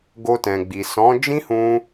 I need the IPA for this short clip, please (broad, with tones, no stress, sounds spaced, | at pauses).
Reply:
ɡ o˧ t ɛ̃˨ ɡ͡b i˨ s ɔ̃˨˦ d͡ʒ ĩ˦ h ũ˧